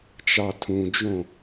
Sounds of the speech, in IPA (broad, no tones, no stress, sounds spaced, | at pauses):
t͡ʃ ɑ tʰ ũ d͡ʒ õ